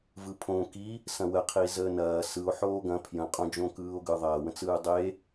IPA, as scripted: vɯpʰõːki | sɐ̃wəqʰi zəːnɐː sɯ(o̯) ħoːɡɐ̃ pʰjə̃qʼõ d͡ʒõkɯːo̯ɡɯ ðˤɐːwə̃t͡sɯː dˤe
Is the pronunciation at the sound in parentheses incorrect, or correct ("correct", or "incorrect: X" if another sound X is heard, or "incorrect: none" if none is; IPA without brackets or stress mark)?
correct